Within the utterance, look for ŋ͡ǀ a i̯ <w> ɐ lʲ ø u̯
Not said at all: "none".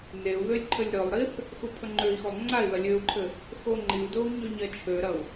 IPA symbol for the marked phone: ð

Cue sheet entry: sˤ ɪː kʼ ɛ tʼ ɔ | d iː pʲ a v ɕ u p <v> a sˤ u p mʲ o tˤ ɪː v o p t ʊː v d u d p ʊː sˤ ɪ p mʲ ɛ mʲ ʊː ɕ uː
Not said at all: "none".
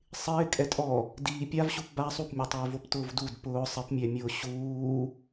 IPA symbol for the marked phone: b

